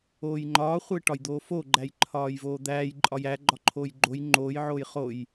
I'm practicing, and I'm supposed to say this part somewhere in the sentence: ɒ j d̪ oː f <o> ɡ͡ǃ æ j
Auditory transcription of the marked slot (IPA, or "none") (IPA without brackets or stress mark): o